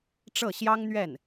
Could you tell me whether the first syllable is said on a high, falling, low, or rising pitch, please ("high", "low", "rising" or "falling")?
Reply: falling